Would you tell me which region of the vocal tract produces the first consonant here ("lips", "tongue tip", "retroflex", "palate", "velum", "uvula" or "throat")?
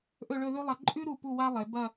throat